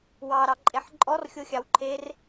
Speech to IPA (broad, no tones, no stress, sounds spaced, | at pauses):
w ɑ ɾ ɑ ǃʼ e ħ ǃʼ ɔ r xʲ o xʲ ɑ w ǃʰ e r